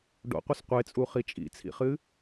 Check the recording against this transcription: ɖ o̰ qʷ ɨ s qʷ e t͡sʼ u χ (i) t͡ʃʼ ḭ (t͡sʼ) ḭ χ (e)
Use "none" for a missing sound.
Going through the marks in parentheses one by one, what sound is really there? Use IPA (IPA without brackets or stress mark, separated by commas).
i, t͡sʰ, ɨ